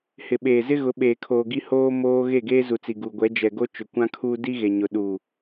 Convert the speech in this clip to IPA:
h ɪ˨ ɓ eː˨ z ɪ˦ ɣ ʊ˨˦ ɓ eː˨ kʰ oː˨ ɡ i˦ h oː˦ m oː˦ ɣ e˦˨ ɡ eː˦ z u˨ t͡s i˨ ɡ u˨ ɡʷ ɛ˨˦ d͡ʒ ɛ˨ ɡ o˦ t͡ʃ ʊ˨ kʷ ã˦ kʰ uː˦ d i˦ ɣ e˨ ɲ ʊ˨ ɗ u˨

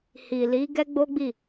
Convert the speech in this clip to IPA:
h i˨ l i˨˦ ɡ ɛ˦ ɡ͡b o˦ ɡ͡b i˦˨

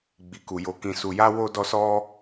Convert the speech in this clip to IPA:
ɡ͡b i˧ k u˧ j o˧ k ĩ˨ s u˨ j a˧ w o˦ d ɔ˦ s ɔ˦

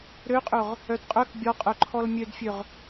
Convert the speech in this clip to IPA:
ɾ ø qʼ ɵ ʁ | œ d qʼ œ k bʲ ɔ qʼ œ ǃʰ ɔ l mʲ ø d fʲ ø ʁ

